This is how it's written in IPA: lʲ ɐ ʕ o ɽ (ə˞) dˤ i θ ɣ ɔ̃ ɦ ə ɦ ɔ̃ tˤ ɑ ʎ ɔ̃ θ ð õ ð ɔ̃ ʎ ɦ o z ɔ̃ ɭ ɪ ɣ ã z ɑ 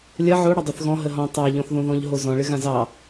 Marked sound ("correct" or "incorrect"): incorrect